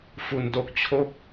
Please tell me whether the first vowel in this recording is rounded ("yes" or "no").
yes